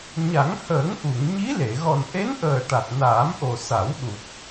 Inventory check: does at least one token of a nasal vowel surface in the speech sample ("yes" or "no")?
no